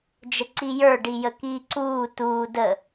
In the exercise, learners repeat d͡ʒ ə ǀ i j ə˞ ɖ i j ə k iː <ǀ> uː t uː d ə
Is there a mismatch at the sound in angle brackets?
no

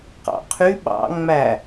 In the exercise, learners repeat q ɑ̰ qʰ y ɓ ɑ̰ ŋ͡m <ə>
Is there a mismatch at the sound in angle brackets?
yes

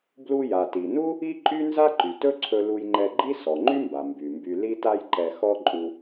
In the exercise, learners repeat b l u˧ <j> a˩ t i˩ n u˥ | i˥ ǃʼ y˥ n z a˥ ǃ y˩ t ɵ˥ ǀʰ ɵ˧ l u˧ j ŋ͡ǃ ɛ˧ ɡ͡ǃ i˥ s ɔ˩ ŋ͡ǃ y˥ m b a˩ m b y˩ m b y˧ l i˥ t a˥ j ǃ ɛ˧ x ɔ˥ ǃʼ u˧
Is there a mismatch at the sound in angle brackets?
no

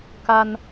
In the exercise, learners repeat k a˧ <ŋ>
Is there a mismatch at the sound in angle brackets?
yes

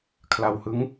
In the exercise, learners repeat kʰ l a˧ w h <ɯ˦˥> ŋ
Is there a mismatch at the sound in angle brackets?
no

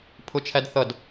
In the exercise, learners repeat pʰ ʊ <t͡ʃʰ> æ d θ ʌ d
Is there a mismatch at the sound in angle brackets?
no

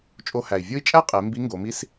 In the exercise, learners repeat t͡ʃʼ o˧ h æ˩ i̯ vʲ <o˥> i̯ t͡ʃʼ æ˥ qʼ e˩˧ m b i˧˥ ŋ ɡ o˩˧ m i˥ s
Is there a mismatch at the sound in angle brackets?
no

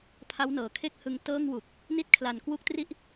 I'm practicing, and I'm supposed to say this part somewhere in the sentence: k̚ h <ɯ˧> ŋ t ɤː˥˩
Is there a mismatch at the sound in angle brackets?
no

